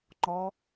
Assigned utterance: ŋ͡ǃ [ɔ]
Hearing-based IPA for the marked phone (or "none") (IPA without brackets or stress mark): ɔ